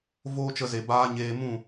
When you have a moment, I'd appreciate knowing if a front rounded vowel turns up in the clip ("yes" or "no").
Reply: no